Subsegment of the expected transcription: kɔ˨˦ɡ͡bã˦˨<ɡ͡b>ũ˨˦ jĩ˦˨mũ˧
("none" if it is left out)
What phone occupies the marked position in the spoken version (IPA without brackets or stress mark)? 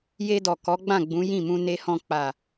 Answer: ɡ͡b